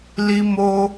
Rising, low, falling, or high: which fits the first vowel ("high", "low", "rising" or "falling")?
high